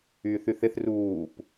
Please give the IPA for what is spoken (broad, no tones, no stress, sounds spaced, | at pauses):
yː θ y θ ɪ θ r uː p